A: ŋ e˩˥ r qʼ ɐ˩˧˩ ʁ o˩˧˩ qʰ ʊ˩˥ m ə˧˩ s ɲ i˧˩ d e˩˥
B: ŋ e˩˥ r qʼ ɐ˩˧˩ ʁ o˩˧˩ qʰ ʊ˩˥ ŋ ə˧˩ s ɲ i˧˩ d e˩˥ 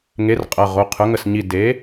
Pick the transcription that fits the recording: B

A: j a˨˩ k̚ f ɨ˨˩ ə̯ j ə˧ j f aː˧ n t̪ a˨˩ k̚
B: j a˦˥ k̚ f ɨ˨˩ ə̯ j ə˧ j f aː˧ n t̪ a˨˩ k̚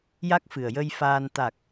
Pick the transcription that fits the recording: B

